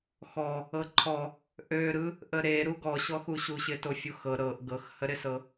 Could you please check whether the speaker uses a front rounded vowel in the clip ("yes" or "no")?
yes